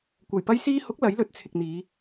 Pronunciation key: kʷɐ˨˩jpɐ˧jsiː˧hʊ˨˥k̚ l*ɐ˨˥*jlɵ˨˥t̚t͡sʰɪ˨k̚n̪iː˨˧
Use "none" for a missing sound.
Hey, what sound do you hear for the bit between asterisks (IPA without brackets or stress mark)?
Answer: ɐ˨˥